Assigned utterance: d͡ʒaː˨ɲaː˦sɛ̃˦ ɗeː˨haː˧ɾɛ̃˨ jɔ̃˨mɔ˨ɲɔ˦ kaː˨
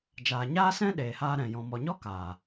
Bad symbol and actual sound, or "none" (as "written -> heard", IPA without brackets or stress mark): none